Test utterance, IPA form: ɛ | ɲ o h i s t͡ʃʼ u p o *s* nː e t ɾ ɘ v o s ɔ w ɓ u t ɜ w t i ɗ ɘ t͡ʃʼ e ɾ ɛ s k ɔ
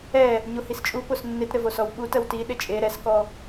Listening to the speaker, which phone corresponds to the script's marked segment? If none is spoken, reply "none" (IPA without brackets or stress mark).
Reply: s